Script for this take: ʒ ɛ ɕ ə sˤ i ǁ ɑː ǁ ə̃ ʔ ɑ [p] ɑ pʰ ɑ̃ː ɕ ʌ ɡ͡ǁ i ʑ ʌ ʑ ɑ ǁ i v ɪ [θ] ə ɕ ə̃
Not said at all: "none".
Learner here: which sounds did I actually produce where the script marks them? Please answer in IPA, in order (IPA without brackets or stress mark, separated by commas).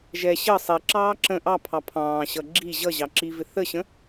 pʰ, θ